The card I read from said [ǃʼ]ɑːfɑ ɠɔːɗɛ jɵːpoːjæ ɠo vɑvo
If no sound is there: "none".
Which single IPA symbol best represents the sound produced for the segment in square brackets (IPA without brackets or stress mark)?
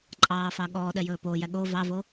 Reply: ǃʼ